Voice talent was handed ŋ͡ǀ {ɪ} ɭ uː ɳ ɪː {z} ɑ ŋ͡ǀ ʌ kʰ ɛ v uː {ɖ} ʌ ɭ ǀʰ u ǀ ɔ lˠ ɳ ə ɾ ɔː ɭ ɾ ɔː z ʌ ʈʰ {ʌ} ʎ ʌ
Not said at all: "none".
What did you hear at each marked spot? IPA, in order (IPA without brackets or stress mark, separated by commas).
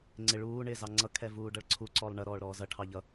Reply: ɪ, z, ɖ, ɑ